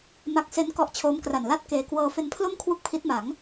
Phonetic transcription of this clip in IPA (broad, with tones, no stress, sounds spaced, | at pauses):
m a˦˥ k̚ s e˦˥ n k ɔ˦˥ ʔ t͡ɕʰ oː˦˥ m k r a˨˩ n l a˥˩ t̚ k eː˨˩ k w ɤː˧ f e˧ n pʰ l o˥˩ m kʰ w u˥˩ k̚ pʰ i˦˥ t̚ m a˩˦ ŋ